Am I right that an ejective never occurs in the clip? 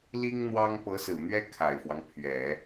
yes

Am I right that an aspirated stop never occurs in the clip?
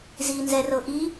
yes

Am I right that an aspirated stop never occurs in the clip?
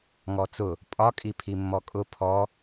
no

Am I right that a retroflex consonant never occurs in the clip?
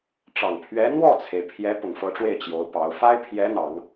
no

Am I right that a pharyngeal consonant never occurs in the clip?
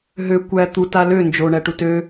yes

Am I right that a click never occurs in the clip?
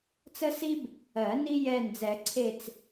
no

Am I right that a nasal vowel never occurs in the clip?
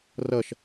yes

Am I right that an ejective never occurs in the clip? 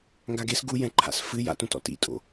no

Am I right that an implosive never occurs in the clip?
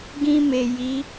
yes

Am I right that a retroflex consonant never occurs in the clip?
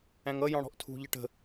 no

